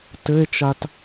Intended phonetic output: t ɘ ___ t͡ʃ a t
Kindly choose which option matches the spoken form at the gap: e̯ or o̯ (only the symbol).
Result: e̯